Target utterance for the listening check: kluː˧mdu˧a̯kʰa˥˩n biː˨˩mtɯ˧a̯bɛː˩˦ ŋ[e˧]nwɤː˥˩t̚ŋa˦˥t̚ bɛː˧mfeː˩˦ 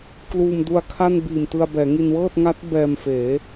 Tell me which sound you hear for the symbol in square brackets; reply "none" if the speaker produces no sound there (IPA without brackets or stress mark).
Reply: i˧